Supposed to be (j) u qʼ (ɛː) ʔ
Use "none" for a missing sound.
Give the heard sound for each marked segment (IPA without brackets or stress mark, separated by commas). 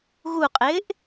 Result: ɣ, ɪː